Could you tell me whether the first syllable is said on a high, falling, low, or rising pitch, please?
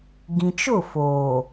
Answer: low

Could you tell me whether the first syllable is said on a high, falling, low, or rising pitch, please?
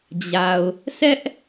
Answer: low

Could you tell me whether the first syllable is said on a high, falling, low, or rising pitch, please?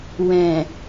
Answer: low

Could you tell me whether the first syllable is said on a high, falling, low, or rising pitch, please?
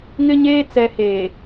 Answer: high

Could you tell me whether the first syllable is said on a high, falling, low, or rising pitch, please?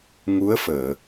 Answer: rising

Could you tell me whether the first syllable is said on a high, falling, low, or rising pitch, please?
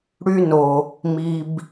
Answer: high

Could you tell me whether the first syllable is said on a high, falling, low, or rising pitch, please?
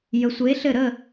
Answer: rising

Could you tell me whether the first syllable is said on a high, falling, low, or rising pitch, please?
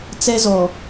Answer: high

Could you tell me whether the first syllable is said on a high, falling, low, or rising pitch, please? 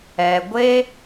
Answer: low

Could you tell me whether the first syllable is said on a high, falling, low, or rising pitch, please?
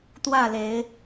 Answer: falling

